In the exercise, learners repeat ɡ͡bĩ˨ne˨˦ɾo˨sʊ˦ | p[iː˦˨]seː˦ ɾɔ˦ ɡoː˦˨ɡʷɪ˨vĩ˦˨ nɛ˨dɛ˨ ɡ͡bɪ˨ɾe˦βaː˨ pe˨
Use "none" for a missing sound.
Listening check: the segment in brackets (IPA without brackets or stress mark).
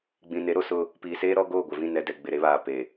iː˨